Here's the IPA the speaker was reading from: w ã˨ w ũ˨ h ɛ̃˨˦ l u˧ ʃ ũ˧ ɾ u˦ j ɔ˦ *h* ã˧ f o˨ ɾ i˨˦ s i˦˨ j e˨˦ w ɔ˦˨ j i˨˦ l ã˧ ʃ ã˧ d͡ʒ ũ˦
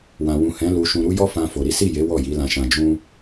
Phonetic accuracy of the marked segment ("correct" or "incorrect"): incorrect